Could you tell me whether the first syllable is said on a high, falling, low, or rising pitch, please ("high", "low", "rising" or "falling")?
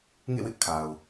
falling